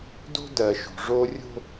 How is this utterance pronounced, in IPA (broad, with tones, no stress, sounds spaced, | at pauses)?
d o̤˦ d ɜ˨ ʃ o̤˨ ʐ o˦ rʲ o̤˦